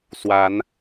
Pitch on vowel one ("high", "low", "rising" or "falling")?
rising